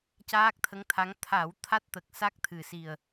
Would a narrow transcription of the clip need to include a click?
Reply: no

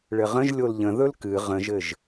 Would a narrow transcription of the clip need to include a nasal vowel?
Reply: yes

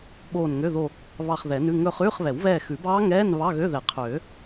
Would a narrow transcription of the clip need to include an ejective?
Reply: no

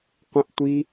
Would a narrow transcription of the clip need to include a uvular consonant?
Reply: yes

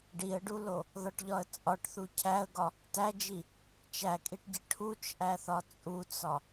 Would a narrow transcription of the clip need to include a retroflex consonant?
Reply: yes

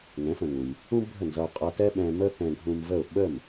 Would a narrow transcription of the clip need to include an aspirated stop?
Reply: no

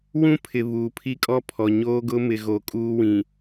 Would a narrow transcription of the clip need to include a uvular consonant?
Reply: no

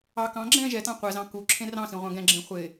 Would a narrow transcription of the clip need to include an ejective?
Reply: no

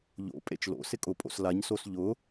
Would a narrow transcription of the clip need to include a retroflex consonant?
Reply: no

